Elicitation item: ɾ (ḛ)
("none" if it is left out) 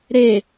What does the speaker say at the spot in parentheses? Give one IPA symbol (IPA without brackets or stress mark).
e